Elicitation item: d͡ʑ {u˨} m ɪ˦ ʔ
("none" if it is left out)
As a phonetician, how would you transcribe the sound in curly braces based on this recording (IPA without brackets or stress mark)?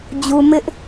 u˨